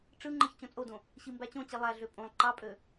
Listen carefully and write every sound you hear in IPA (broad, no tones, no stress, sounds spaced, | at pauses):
ʈ͡ʂ ɯ ŋ͡ǃ ɯ ç t͡ɕ õ t͡sʼ o d õ | ɕ i m b æ t͡ɕ õ t͡ɕ i lˠ æ ɮ ø pʼ õ lˠ ǃ ɑ pʼ ø